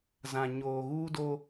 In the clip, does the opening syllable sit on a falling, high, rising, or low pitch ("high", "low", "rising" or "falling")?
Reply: low